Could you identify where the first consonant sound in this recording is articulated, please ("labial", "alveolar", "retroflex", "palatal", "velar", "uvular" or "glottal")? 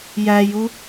palatal